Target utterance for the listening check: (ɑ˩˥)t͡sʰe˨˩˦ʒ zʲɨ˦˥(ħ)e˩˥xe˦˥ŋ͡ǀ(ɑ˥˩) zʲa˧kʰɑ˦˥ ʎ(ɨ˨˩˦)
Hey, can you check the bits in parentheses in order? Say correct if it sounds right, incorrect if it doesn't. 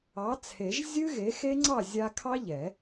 correct, incorrect: ɣ, correct, incorrect: ɛ˨˩˦

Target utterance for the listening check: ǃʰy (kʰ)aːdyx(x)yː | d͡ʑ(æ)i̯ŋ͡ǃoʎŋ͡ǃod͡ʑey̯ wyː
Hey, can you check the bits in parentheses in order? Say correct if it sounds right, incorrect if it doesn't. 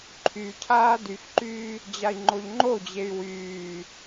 incorrect: cʰ, incorrect: ǃ, incorrect: a

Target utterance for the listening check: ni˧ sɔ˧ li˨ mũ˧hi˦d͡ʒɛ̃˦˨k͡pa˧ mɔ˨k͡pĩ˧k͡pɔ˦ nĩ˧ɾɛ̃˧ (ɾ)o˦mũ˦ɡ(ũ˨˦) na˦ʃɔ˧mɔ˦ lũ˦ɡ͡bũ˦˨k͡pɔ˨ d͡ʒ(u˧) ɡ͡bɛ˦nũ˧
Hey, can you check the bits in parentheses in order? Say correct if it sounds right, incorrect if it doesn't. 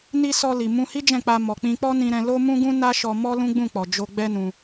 incorrect: l, incorrect: ũ˦, incorrect: o˧

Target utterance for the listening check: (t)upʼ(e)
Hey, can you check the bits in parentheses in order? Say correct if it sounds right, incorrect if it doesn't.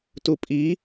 correct, incorrect: i

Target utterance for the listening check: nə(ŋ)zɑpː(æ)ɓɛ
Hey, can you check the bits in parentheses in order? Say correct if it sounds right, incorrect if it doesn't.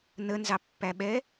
incorrect: n, correct

